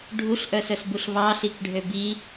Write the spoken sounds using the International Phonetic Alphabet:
ɖʱ u ɬ ʔ œ s œ s b u ɬ β ɑ ɬ i k ɖʱ ø b i

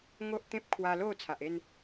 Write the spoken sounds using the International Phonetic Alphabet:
ŋ o˦ ʔ t̪ ẽ˦ p̚ kʰ w a˧ l o˥˧ t͡sʰ a˨ ʔ e˥˧ n

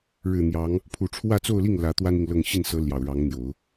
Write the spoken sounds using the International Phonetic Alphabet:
ɻ ɻ̩˨˩ n̪ j ɑ˧˥ ŋ | pʰ u˨˩ ʈ͡ʂʰ w ä˥˧ t͡s o˥˧ ʊ̯ l i˥˩ ŋ l ä˧˥ t̪ w a˥ n i˨ ŋ l ɤ˥˧ ŋ ɕ i˥˩ n s ɤ˧˥ l j ɑ˨˩ ʊ̯ ɻ ɑ˧˥ ŋ n̪ j o˨˩˦ ʊ̯

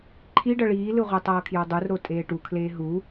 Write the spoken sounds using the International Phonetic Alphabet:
ǃʰ i ɖ ʌ ɭ iː l ɯ ʁʷ e tˤ ʌː kʰ j o dˤ u r ɾ o tʼ eː ʈ u kʰ l eː ɦ u

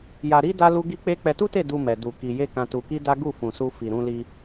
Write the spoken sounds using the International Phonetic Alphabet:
j a˧ ɾ i˦ d a˦ l u˦ ɡ i˦ k͡p e˦ k͡p ɛ˧ t u˦ t e˦˨ d u˧ m ɛ˨ d u˨ k i˨ j e˧ k ã˧ t u˧ k i˦ d a˦ ɡ u˦˨ f ũ˨ s u˧ f i˨ ɾ ũ˧ l i˧

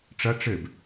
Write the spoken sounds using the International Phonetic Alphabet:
ʈ͡ʂ ɐ ʈ͡ʂ ɘ b

